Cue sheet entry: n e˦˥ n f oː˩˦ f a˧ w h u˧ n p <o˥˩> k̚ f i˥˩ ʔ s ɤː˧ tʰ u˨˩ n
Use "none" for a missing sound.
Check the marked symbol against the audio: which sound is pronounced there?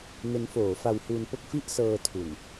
o˥˩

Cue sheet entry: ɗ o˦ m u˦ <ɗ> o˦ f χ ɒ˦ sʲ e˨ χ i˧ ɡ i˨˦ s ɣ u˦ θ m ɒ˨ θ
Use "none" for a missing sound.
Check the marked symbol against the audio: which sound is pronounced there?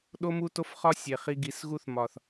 t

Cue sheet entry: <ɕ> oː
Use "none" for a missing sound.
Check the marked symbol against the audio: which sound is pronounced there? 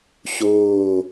ɕ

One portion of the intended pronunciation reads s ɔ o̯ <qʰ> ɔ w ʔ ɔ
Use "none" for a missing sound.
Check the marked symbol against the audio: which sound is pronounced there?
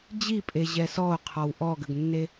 qʰ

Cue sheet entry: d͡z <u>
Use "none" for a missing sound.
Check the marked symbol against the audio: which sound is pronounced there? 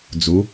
u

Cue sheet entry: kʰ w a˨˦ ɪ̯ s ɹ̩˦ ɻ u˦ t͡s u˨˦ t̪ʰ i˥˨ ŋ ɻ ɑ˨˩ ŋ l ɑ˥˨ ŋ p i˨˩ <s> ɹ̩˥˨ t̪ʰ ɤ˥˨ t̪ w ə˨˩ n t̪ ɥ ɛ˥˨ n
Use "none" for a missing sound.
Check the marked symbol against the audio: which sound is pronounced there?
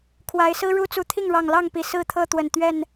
s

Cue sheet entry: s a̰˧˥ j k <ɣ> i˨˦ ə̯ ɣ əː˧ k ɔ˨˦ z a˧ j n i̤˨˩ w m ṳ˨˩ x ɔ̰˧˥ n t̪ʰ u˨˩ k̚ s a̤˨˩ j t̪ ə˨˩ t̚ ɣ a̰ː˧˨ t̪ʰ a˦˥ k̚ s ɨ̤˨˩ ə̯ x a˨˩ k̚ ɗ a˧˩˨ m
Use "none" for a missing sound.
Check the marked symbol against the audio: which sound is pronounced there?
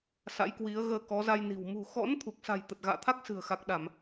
w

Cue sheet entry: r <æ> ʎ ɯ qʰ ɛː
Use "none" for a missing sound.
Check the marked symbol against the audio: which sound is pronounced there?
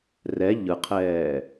ɛ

